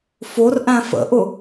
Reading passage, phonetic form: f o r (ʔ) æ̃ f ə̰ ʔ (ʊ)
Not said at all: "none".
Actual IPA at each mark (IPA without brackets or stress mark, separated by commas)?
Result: ʔ, ʊ